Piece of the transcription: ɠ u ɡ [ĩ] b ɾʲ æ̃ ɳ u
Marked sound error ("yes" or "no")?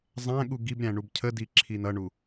yes